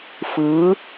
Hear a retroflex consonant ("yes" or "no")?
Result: no